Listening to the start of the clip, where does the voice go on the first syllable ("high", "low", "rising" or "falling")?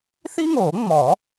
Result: high